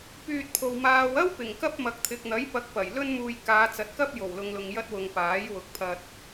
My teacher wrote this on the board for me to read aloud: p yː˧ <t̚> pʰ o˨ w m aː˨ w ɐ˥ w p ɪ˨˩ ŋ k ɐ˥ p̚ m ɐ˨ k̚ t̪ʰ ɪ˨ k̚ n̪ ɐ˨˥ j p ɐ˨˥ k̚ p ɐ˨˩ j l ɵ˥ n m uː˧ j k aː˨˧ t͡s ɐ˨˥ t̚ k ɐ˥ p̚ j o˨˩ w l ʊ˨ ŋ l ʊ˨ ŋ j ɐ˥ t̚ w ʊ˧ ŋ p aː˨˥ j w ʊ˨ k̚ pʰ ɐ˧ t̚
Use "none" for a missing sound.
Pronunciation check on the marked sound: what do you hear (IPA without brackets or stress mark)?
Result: t̚